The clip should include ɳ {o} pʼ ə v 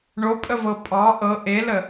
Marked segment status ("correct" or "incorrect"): correct